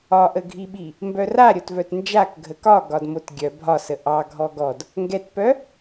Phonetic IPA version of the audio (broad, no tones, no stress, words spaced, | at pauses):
ɒʔəɡʱiɓi | mbœra ɾʲotvœtnd͡ʒak ɡʱəkɒ ɡɒdmotɡʲœ bʱɒsə ʔɑ ɡʱɔɡɔd | ŋɡɛtpœ